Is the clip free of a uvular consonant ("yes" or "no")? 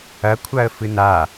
yes